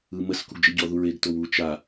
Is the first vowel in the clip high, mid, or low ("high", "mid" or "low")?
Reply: high